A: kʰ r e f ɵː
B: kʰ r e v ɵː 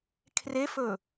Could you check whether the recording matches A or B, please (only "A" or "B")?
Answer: A